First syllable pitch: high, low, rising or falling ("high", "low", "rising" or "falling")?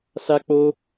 high